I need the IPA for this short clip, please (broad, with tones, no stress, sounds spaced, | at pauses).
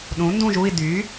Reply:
ɗ ũ˨˥ n d ũ˥˧ ʒ u˥˧ i̯ d y˨˥